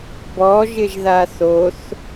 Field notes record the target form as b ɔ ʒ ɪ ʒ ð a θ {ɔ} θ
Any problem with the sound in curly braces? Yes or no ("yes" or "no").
yes